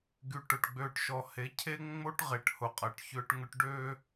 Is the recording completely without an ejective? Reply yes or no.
no